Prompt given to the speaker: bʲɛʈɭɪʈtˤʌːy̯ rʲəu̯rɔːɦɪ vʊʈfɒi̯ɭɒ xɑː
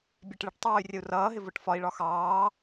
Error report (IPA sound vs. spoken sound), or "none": ɔː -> ʌː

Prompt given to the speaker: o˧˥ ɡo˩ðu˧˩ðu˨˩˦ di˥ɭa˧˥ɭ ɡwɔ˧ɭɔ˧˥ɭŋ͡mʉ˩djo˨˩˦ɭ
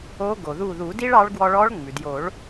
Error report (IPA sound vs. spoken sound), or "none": a˧˥ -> ɑ˧˥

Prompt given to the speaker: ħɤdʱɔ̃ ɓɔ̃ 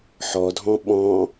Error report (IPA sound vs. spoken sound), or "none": ɤ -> ɔ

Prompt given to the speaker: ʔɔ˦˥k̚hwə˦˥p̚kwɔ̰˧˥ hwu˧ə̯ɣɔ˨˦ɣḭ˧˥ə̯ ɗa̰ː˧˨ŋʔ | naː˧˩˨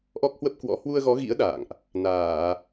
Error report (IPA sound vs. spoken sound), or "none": none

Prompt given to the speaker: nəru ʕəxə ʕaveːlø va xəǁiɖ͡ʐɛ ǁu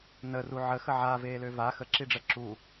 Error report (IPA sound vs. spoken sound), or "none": none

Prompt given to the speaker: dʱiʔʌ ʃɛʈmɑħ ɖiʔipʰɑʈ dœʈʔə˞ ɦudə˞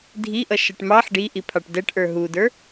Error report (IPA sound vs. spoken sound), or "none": œ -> ɛ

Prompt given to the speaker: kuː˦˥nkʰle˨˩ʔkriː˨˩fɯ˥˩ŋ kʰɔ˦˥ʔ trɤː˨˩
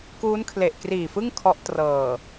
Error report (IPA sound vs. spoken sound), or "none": none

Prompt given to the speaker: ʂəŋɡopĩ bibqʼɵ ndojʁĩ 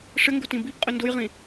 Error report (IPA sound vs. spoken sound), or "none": p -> t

